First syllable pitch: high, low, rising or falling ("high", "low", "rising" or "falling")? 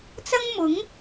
high